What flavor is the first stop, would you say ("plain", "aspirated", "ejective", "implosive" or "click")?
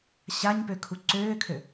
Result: plain